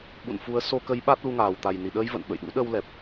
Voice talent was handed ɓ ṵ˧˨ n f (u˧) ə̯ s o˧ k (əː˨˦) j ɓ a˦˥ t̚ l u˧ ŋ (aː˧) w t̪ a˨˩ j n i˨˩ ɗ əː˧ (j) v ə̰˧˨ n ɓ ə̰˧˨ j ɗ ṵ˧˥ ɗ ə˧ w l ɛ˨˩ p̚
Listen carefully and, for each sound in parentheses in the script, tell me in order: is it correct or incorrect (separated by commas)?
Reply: incorrect, incorrect, incorrect, correct